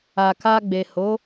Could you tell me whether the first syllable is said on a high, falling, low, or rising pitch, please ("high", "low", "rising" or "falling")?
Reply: low